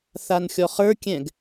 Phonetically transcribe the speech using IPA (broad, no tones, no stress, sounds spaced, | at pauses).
θ a n xʲ ɔ χ ə˞ kʲ ɛ̃ ɡ